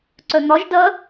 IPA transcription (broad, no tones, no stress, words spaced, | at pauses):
ǀœn̪ɒʒ dɐ